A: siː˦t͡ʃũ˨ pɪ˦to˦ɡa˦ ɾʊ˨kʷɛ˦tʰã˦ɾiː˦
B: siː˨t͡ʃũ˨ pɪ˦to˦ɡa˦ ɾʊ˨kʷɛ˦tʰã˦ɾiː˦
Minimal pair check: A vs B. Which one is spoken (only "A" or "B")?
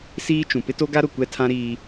A